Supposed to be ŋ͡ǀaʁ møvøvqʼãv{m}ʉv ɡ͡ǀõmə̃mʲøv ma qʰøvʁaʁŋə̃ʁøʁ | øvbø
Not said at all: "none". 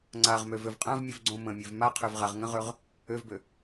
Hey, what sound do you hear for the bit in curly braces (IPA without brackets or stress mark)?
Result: mʲ